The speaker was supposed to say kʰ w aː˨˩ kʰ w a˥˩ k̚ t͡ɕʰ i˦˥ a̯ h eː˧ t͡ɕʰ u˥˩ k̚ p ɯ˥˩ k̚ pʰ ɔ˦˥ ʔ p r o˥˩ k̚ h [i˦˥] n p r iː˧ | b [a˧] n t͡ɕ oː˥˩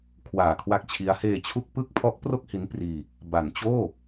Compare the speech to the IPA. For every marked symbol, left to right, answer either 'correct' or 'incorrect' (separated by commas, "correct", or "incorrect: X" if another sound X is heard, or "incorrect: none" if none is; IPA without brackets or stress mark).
correct, incorrect: a˩˦